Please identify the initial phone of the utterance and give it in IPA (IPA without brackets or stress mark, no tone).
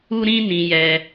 u